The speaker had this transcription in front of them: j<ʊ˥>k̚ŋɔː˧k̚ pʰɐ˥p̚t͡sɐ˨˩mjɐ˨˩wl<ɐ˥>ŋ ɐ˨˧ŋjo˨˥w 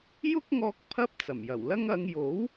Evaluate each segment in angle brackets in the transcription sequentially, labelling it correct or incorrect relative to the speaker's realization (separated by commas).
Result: correct, correct